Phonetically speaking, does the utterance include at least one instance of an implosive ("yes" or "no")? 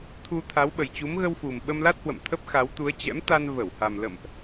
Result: yes